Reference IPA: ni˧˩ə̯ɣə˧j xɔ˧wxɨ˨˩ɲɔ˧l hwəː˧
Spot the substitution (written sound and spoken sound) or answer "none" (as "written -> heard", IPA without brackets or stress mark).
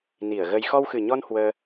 l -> n